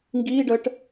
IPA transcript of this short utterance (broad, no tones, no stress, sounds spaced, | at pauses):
ŋ ɡ iː ɖ əː ʈ